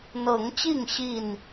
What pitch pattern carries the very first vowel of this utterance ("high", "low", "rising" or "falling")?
rising